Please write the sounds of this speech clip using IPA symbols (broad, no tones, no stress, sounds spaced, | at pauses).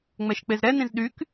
ŋ͡m ɛ ʃ k͡p e z ɾ ɛ n ĩ z ɗ y k